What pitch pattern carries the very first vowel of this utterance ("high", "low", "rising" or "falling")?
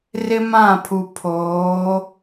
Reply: high